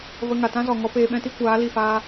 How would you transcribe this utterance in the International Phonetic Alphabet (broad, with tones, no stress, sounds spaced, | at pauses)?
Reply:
v ə˧ ŋ a˨ t ã˦ z ɔ˨ ŋ ɔ˦ p eː˧ ɓ ɛ̃˦ t i˦ kʷ aː˨˦ l i˦˨ f aː˦